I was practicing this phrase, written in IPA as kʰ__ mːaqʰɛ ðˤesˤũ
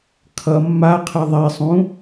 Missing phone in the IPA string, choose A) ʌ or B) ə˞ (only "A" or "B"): A